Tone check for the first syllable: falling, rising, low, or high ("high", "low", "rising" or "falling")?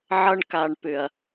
high